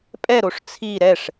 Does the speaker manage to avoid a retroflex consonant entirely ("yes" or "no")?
no